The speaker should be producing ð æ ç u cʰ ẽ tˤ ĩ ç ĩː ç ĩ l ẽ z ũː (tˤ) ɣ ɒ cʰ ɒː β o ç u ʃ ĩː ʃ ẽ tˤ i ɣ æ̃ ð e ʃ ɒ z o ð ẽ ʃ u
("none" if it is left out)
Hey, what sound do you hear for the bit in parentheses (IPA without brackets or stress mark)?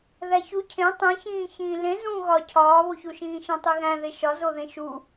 none